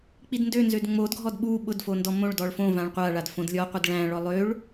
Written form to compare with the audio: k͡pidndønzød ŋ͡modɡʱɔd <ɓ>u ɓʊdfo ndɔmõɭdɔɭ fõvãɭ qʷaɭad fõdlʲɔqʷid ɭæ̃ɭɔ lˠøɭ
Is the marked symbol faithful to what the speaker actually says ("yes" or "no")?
yes